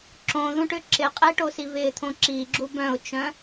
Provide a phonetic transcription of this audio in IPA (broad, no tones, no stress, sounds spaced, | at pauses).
ǁ õ ð ũ ʈ ʏ ǁ ɪ qʼ e ʈ o s i v ɪ t̪ʰ õ ǁ i ɡ͡ǁ u b œ̃ ʊ̯ t͡ʃ œ̃